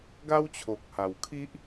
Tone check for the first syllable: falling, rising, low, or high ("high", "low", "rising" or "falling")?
high